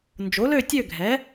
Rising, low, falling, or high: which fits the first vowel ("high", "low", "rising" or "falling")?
rising